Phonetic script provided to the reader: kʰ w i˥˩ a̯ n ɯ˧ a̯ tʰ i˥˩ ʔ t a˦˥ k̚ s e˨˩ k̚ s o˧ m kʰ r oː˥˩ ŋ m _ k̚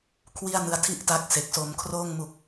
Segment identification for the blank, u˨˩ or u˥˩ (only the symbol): u˨˩